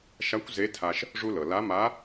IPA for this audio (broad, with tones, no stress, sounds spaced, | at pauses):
ʃ a˧˥ kʷ z e˧˥ tʰ a˧ ʃ | ʐ u˧ l ɤ˩ l a˧˥ m a˧˥